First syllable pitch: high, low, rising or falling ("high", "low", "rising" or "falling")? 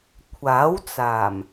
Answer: rising